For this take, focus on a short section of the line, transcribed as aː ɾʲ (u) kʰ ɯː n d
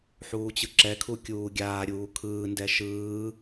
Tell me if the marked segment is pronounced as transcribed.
no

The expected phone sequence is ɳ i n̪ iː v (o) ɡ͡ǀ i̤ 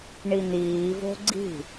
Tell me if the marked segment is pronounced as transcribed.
no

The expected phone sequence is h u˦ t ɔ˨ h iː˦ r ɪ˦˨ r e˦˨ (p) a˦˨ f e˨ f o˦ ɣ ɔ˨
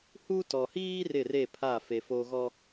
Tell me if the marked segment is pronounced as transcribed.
no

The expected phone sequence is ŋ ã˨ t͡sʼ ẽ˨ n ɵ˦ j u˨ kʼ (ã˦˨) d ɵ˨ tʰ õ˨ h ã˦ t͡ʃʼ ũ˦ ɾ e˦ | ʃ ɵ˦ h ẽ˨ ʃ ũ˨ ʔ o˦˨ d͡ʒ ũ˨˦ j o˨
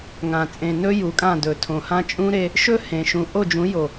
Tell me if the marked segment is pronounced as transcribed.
yes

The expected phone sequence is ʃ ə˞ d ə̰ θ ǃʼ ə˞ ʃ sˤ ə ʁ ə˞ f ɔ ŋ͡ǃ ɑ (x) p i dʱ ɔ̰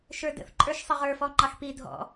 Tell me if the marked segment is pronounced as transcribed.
yes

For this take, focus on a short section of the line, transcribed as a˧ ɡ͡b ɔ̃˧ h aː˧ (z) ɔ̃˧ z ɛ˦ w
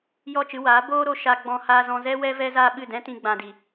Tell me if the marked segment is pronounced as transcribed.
yes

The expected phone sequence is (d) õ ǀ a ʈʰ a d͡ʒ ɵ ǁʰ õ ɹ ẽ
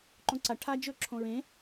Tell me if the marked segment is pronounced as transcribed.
no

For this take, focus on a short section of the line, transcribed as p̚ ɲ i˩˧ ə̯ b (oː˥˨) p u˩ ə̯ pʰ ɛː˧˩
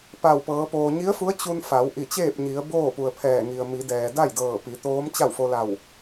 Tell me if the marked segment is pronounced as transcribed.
yes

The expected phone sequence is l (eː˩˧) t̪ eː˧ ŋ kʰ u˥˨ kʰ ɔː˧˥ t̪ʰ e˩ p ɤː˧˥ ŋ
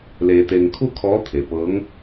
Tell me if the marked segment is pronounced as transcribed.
no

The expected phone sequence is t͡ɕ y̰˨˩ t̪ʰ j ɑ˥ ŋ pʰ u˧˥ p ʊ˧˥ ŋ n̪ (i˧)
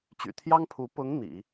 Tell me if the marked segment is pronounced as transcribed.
no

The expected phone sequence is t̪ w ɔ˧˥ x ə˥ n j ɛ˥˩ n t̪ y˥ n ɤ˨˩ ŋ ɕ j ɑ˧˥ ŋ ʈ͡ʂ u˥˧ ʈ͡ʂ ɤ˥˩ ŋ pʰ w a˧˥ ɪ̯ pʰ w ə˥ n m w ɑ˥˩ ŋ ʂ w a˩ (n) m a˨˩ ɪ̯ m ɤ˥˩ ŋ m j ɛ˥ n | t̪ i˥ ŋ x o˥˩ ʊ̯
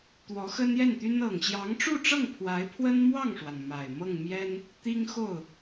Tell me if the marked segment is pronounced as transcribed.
yes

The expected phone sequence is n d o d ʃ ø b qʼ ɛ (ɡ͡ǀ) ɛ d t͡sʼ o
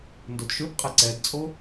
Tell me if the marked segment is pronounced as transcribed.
no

